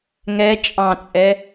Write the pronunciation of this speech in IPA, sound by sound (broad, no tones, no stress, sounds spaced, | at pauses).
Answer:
ŋ ɛ t͡ʃʼ ɑ̃ t͡sʼ ɛ